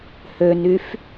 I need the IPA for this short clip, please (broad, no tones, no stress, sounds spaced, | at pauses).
h ø n y f